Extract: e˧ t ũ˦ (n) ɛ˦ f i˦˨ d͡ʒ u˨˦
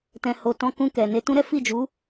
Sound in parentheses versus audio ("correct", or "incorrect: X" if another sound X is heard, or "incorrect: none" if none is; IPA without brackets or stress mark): incorrect: ɾ